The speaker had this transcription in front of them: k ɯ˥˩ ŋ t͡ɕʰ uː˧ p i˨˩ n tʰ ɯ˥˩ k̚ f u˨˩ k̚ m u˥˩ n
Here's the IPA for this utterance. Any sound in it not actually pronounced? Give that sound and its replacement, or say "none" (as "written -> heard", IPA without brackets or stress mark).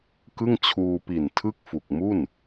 none